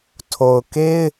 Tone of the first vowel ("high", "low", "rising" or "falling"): low